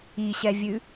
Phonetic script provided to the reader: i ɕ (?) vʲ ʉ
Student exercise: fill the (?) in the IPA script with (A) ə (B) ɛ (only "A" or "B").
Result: B